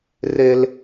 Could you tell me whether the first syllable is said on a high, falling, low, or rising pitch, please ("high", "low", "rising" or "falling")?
high